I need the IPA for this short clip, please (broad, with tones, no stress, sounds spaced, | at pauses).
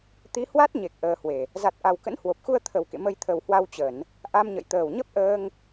t̪ i˨˦ h w a˦˥ t̚ ɲ e˨˩ k̚ ʔ əː˧ h w e˨˩ | z a˨˩ t̚ ʔ a˨˩ w k ə̰˧˥ n h w o˨˩ p̚ x u˧ ə̯ t̪ʰ ə˨˩ w k ḛ˧˨ m ə˧ j t̪ʰ ə˨˩ w h w a˧ w t͡ɕ ə˧˩˨ n | ʔ a˧ m ɲ ə̰˧˨ j t̪ əː˨˩ w ɲ ə˦˥ p̚ ʔ əː˧ ŋ